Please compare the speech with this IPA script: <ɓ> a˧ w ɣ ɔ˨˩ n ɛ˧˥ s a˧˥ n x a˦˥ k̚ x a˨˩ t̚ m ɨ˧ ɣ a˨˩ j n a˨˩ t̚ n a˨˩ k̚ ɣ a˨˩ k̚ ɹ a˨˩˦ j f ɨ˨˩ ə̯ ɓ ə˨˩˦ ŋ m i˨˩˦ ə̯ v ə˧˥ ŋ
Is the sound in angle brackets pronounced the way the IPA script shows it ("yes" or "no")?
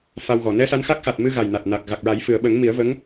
no